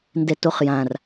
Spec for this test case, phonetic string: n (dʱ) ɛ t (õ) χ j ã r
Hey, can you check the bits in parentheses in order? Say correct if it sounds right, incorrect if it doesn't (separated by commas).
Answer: incorrect, incorrect